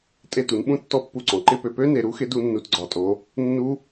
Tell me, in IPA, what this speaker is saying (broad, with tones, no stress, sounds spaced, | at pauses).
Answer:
tʼ e˧˩ t u˩˧ n ɓ ũ˥˩ tː ɔ˥˩ pː u˥˩ ǀ ɔ̃˩˧ ǃ ɪ˧˥˧ p ø˩˧ p ø˦˥ n e˩˧ ɾ u˨˥ x ɪ˨˥ d u˦˥ nː u˧˥˧ t ɡ͡ǀ ɒ˨˥ tʼ o˨˥ | nː u˦˥